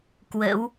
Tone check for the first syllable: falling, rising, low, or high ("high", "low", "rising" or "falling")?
rising